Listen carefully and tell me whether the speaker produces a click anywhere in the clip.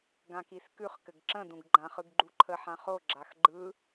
yes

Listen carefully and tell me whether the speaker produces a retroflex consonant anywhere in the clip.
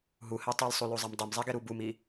no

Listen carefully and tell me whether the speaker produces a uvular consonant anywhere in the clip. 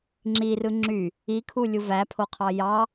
yes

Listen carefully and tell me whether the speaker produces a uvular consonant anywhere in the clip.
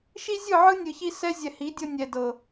no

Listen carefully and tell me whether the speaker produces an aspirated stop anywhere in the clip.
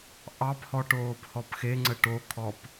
yes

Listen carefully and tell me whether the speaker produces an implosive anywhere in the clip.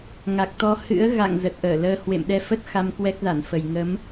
yes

